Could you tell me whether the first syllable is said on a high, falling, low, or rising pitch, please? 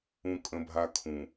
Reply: high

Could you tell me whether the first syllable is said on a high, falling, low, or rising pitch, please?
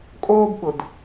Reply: high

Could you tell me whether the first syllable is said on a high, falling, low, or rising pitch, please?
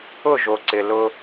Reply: falling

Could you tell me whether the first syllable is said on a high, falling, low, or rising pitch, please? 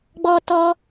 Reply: high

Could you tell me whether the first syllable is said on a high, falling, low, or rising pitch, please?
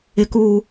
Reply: high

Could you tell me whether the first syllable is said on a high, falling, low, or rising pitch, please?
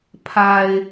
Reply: low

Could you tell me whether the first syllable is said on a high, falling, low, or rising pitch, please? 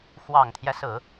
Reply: low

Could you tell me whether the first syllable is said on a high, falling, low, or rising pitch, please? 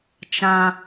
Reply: high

